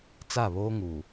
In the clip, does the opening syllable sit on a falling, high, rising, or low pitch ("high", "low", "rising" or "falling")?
falling